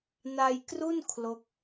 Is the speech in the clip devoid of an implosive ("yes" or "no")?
yes